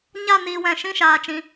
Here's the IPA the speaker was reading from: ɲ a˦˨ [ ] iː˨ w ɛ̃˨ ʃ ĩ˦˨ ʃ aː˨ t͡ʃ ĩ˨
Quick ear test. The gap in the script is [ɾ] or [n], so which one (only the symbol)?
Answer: n